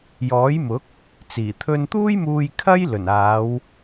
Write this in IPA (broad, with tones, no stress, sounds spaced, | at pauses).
j ɔː˨˥ j m ʊ˨˥ k̚ | t͡s iː˨˩ t̪ʰ ɵ˧ n t̪ uː˥ j m uː˧ j kʰ ɐ˥ j l ɵ˨˩ n aː˨˧ w